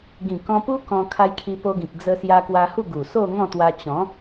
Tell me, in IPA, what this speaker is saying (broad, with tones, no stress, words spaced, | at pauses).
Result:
ɡĩ˨˩kɔ̃˧pu˦ kɔ̃˧ kʰa˧jkʰi˧po˧ɡĩ˨k̚ d͡zə˧sja˧kwa˧ hu˥˧ɡu˨˩so˥˧ ŋɔ̃˥˧t̪wa˧ t͡ɕɔ̃˨˦